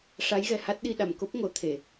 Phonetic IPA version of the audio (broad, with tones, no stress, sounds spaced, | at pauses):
ʂ a˧˥ j ɣ ɛ˨˩ h a˦˥ t̚ ɗ i˧ ɗ a˨˩ m k o˦˥ p̚ ŋ o˨˩˦ t̪ʰ e˨˩˨